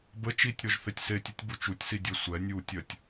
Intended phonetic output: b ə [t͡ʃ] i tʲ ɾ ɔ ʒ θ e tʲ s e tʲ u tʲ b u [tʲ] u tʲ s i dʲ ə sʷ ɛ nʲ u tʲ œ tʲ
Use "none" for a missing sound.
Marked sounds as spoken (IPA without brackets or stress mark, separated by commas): t͡ʃ, t͡ʃ